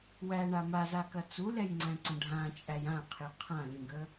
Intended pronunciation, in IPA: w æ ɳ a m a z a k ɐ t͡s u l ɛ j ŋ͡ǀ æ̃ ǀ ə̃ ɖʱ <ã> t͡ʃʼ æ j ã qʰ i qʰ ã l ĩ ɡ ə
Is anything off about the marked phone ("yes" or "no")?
no